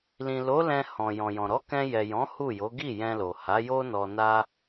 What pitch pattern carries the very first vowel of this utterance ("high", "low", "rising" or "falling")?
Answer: low